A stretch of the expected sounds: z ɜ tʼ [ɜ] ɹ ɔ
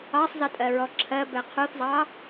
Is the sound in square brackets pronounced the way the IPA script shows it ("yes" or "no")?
yes